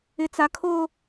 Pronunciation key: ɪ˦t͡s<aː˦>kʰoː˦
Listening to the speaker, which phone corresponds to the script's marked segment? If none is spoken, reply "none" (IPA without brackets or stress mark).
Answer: a˦